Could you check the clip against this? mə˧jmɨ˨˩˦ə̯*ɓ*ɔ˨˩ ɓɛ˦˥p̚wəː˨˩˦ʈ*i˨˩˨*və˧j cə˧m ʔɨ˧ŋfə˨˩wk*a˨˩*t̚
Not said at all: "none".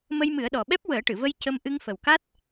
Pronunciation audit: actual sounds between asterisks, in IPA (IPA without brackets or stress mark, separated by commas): ɗ, ɨ˨˩˨, a˦˥